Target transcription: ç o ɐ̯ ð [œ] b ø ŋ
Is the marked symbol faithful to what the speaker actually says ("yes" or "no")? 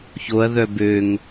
yes